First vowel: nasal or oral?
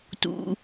oral